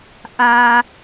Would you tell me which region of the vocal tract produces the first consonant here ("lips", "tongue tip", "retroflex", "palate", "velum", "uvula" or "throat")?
throat